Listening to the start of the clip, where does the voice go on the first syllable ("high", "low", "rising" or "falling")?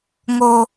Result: low